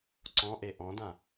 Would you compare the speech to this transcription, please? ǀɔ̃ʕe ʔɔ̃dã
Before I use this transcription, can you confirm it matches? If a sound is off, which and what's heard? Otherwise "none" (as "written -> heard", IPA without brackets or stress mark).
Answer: ʕ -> ʔ